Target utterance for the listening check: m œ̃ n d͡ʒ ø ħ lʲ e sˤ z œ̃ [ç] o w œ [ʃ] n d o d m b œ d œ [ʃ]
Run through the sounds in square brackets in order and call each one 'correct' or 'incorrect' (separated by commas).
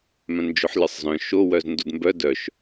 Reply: incorrect, incorrect, correct